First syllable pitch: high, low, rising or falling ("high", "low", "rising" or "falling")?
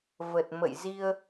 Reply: low